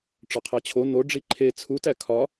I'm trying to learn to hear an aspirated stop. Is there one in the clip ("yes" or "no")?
yes